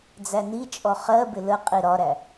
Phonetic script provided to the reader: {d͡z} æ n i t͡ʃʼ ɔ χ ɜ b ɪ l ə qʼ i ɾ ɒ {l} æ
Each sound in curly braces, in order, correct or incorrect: correct, incorrect: ɾ

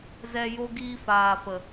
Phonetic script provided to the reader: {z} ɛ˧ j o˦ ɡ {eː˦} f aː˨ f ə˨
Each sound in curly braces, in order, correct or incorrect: correct, incorrect: iː˦

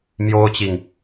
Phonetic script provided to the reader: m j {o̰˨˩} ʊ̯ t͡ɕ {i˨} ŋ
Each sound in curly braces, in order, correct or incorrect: incorrect: o˥, correct

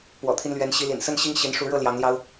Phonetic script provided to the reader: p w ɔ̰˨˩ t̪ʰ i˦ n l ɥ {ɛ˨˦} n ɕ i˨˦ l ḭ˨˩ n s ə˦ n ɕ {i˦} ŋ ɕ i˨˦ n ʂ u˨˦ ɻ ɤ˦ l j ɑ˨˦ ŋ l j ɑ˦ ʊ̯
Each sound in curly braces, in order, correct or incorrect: correct, correct

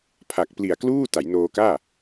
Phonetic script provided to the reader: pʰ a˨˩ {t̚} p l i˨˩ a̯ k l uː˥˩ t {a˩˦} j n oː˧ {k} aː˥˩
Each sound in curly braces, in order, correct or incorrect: incorrect: k̚, correct, correct

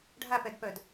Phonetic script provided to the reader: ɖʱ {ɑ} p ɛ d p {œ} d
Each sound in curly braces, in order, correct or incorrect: incorrect: a, correct

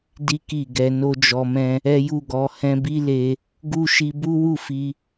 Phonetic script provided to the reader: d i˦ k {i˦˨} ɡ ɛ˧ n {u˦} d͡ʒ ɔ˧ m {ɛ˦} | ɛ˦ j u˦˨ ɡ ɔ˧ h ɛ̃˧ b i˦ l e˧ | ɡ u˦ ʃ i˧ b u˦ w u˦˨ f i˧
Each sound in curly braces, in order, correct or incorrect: correct, incorrect: o˦, incorrect: ɛ̃˦

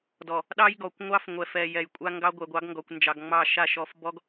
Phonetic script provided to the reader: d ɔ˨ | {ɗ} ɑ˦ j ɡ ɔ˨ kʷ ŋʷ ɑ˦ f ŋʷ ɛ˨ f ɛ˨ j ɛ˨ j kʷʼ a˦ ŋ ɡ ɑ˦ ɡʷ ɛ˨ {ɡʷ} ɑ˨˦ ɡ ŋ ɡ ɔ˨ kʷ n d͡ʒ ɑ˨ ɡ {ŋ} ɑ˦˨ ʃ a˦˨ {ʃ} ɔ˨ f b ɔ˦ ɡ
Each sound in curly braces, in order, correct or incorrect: correct, correct, incorrect: ŋ͡m, correct

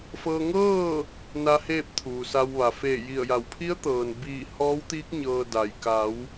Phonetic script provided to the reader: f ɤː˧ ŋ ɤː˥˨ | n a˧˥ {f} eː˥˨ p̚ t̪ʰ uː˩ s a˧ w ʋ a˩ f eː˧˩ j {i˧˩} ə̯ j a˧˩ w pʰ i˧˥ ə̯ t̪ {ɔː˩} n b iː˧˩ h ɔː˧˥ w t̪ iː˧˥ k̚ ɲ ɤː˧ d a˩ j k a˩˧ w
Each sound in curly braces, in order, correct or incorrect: incorrect: h, correct, incorrect: ɤː˩

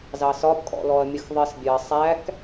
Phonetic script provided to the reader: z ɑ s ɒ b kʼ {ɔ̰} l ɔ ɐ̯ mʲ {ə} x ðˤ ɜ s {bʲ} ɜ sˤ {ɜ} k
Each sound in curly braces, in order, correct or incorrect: correct, correct, correct, incorrect: æ

